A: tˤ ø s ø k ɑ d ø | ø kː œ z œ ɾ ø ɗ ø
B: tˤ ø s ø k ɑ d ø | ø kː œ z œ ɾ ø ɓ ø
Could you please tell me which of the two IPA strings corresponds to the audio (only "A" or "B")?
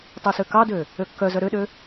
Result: A